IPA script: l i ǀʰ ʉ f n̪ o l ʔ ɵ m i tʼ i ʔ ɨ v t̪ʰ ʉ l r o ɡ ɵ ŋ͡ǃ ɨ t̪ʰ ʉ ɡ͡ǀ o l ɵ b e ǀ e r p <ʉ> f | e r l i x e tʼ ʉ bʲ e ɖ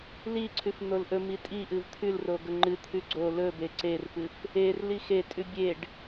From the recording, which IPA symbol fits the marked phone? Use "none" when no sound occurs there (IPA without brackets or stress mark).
ɨ